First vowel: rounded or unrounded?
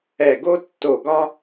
unrounded